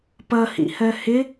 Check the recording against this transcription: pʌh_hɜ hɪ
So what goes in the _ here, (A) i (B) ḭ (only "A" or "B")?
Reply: B